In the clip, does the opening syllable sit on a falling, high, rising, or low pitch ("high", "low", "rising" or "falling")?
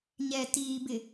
low